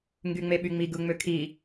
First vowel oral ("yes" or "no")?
yes